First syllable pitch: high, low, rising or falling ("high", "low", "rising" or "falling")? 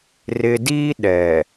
low